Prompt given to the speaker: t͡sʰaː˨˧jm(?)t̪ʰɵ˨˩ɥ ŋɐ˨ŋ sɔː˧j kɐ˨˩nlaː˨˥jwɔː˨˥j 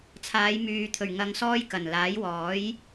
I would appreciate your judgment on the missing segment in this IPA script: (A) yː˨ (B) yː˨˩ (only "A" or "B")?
A